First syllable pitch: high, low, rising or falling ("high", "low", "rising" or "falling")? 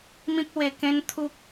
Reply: high